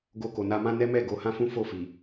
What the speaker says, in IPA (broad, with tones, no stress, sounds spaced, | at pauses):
ɡ o˧ k o˨ n a˧ m ã˦ n ɛ˦ m ɛ˦˨ ɡ o˨˦ h ã˦ f ũ˦ f o˦˨ f i˨